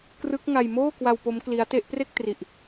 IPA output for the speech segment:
k r ɯ˦˥ k̚ ŋ a˧ j m oː˥˩ k w a˧ w p o˦˥ m k l i˦˥ a̯ t e˦˥ ʔ p r e˥˩ k̚ t r i˨˩ ʔ

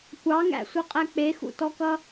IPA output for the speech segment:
kʷ ɑ ŋ æ̰ sʷ ʌ qʼ æ k͡p e x ṵ t ɔ k ʌ

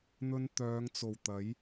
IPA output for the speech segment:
n̪ ɵ˧ n t̪ œː˨˧ ŋ t͡s o˨˩ w t̪ ɐ˨˥ j

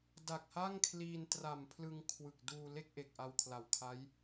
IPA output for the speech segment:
d a˨˩ k̚ h a˥˩ ŋ kʰ l iː˧ n t r a˨˩ m pʰ l ɯ˧ ŋ kʰ w ɯ˨˩ k̚ d uː˧ l e˥˩ k̚ ʔ e˨˩ k̚ ʔ a˧ w kʰ l a˨˩ w kʰ a˦˥ j

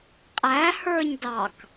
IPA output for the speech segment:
qʼ æ h ə˞ ɲ d ɑ k

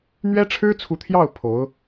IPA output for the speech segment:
n̪ ɥ ɛ˥ ʈ͡ʂʰ ɻ̩˥ t͡sʰ u˧˥ t̪ʰ j ɑ˥˩ ʊ̯ pʰ o˧˥ ʊ̯

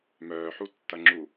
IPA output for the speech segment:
m œː ħ u tː ɐ ŋ͡ǁ u

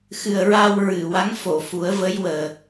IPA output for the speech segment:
x ɨ˨˩ ə̯ ɹ a˧ w ɹ ɨ˨˩˨ w a˧˥ ŋ f o˨˩˨ f u˨˩˦ ə̯ v ə˧˥ j w əː˨˩

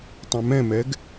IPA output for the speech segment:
tˤ ɛ̃ m ɛ̃ m ɛ ɡ

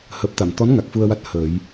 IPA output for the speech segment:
h əː˨˩ p̚ t̪ a˨˩˨ m t̪ ɔ˧˥ n ŋ a˨˩ k̚ f u˧ ə̯ w a˦˥ t̚ h əː˨˩˦ j

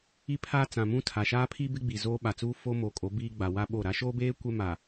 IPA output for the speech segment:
i˦ pʰ aː˦ t͡s ã˨ m ũ˦ tʰ a˨ ʃ aː˦ pʰ i˦ b ɪ˦ ɡ͡b i˨ z oː˦ ɓ a˨ t͡s uː˦ f o˦ m oː˨ kʼ o˨˦ b iː˦ ɡ͡b a˨ w a˦ ɓ o˦˨ ɾ a˦ ʃ oː˦ b eː˦ kʷ ɛ˦ m a˨

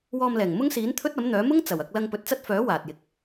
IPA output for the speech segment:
w ɔː˧ m l ɛː˨˩ ŋ m ʊ˥ ŋ s iː˨˥ n t̪ʰ ɵ˥ t̚ ɐ˨˥ m n̪ œː˨˥ m ʊ˥ ŋ t͡s ɐ˨˩ w ɐ˧ k̚ l ɐ˧ ŋ p ɵ˨ t̚ t͡s ɐ˥ t̚ f œː˨˥ w aː˨ t̚ j ɪ˧ k̚

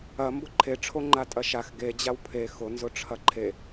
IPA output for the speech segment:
ɐ m b ʊ ǃʰ e ʈ͡ʂʰ o ŋ͡ǃ a tʼ ɐ ʃ a x ɡ e d͡ʑ a w pʰ e x ʊ n z ʊ ʈ͡ʂʰ ɐ ǃʰ e

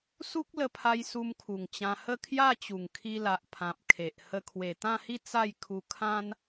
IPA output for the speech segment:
s u˦ k̚ l ə˧ pʰ a˧ j s u˧ m kʰ u˨˩ ŋ t͡ɕ ã˧ h ə˥˧ kʰ j a˥˧ t͡ɕ u˨˩ ŋ kʰ i˧ l a˨ ʔ pʰ ã˨ p̚ kʰ e˨ ʔ h ə˧ kʰ w e˨˩ t̪ ã˥˧ h i˥˧ t͡s a˥˧ j kʰ u˧ kʰ ã˦ n

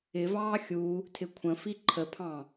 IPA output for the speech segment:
ɪ v ɑː xʲ u | tʰ ɪ kʷʰ ə̃ f i ǃʰ ə pʰ ɑ̃

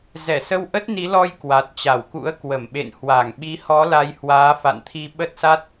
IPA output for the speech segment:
z ɛ˧˩ s ə˧ w ʔ ə˦˥ t̚ n i˨˦ l ɔ˧ j k w a˨˩ t̚ t͡ɕ a˧˩ w k ṵ˧˥ ə̯ k w ə˧˩ m ɓ ḛ˧˨ n h w a˧˩ ŋ ɓ i˨˦ h ɔ˨˦ l a˨˦ j h w aː˨˦ f a̰˧˨ n t̪ʰ i˧ ɓ ə˦˥ t̚ s a˦˥ t̚

